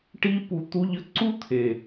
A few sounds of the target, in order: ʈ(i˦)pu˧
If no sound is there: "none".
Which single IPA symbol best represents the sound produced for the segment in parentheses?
i˦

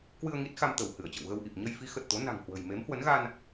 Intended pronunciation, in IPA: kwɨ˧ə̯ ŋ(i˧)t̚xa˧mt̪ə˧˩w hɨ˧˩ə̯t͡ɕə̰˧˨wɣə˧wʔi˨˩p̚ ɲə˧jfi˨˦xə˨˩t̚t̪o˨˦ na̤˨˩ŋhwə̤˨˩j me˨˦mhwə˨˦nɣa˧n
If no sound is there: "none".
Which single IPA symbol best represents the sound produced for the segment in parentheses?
i˦˥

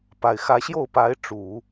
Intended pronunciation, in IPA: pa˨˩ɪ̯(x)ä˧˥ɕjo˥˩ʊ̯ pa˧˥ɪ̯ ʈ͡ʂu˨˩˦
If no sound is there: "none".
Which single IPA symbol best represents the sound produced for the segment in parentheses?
x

